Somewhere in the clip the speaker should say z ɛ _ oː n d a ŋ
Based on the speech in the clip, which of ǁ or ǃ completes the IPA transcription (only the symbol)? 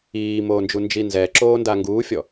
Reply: ǁ